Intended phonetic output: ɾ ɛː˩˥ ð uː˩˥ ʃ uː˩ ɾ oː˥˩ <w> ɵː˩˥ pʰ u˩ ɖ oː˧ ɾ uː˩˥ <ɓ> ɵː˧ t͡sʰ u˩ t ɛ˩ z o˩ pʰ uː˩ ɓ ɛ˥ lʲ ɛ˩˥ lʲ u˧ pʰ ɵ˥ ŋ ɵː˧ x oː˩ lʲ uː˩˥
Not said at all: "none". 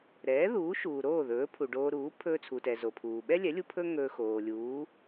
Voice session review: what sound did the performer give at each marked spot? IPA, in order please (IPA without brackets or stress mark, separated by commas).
ð, pʰ